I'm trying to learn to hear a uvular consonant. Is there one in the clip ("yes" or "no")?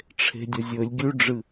no